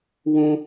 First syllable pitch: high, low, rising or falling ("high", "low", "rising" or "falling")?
high